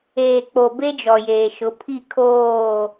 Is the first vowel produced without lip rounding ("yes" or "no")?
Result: yes